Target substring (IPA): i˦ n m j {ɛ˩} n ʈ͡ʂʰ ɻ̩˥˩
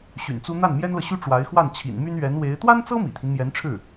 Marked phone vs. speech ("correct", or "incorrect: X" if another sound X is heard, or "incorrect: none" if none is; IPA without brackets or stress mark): incorrect: ɛ˧˥